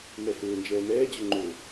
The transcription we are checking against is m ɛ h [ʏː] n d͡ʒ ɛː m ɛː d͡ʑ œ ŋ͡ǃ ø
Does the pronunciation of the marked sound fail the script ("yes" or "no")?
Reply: no